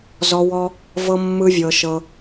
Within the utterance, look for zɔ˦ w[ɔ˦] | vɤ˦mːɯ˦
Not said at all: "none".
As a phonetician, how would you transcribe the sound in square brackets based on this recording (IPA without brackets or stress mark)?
ɔ˦